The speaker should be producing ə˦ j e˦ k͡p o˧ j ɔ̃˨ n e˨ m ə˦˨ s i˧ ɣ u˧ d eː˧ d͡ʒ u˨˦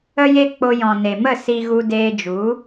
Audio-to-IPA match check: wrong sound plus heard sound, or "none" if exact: none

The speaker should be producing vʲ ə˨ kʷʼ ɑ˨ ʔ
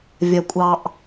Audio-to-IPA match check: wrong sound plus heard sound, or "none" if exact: ə˨ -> ɐ˨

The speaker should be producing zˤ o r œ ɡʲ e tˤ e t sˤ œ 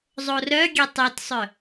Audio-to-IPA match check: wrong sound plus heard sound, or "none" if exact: none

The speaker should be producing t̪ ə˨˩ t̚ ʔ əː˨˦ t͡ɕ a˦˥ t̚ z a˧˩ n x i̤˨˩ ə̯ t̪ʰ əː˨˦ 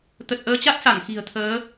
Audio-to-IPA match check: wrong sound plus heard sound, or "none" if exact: z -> s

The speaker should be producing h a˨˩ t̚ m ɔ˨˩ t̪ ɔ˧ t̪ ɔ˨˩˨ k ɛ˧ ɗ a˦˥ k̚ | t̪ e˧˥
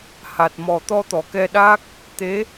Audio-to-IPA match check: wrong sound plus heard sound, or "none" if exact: none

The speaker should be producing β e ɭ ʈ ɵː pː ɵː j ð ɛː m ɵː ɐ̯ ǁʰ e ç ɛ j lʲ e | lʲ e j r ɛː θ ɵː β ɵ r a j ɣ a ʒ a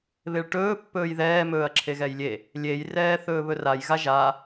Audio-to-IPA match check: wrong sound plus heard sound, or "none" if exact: ç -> ɣ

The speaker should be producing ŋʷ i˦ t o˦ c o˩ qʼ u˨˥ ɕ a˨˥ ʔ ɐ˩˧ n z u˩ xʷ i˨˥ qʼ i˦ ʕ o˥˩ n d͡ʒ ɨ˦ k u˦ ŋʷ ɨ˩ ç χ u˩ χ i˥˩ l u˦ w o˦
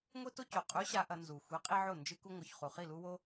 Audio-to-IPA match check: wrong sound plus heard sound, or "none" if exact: none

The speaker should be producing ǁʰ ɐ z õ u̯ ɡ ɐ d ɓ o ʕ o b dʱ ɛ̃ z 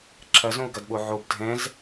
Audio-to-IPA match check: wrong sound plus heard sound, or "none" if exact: none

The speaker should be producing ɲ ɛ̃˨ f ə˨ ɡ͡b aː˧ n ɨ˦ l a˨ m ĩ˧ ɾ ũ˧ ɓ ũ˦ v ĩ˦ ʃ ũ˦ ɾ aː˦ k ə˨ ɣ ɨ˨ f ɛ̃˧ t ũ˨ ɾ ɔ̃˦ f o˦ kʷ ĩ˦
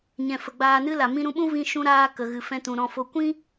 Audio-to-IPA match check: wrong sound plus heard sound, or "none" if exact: none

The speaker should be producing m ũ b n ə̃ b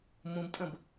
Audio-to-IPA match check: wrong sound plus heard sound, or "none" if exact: n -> tʼ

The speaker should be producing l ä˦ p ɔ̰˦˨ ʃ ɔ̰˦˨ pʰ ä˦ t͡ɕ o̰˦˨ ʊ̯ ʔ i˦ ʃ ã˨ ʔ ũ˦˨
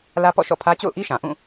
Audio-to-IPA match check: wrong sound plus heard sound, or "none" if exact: none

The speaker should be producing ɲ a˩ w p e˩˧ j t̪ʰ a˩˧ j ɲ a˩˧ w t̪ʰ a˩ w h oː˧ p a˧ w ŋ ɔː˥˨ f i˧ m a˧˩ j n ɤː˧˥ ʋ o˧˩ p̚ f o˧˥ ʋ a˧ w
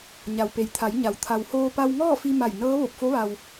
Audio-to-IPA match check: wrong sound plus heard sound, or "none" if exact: none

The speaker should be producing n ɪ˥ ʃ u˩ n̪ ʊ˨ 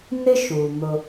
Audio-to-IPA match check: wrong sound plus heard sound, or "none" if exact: none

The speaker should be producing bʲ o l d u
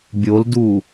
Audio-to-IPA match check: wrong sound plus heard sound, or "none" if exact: none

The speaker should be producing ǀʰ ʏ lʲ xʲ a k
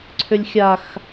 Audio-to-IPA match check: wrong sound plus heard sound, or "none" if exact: k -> x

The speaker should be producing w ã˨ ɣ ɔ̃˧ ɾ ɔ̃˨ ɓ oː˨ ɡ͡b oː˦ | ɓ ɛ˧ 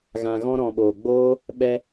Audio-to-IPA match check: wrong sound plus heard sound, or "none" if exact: w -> ɣ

